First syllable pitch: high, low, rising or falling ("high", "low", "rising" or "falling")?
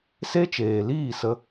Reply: high